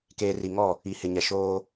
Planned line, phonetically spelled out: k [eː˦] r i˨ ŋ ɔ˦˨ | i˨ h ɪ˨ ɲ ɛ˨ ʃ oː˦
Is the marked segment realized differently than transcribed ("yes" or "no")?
yes